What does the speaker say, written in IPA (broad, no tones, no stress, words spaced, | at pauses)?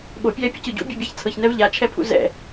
ɓopʲɛːpʲɯcɯ ɟṵbʲɔbʲaç t͡sʰɤçnɛv ʎat͡ʃʰɛpʰṵ zɛ̰